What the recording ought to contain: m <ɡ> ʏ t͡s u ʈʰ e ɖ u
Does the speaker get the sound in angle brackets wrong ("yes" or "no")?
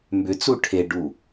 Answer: yes